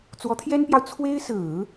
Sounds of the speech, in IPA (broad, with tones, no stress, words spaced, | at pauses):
t͡swɔ˧˥t̪ʰjɛ˥npjɑ˨ʊ̯ t͡sʰwe˥ɪ̯sɹ̩˨˩˦